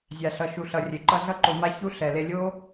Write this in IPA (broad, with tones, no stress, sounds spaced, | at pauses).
zʲ a˨ ɬ ʌ˨ ʃ u˨ ɬ ʌ˨ rʲ e˨ ǃ ʌ˧ ɮ ʌ˧ ǃ o˨ m a˦ ç u˦ ɬ ɛ˨ l e˧ lʲ o˦